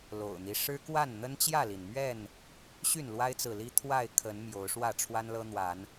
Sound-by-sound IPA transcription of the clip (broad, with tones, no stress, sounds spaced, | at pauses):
l o̰˨˩ ʊ̯ n̪ i˦ ʂ ɻ̩˦ k w a˥˨ n n̪ ə˦ n t͡ɕ j ä˥˨ l i˩ n m ɥ ɛ˥˨ n | ɕ y˥˨ n l w a˦ ɪ̯ t͡s ɹ̩˨ l i˦ t̪ʰ w a˥˨ ɪ̯ kʰ ə˨˦ n m j o˨˦ ʊ̯ ʂ w ä˥˨ ʈ͡ʂʰ w a˦ n l ɤ˦ n̪ w a˨˦ n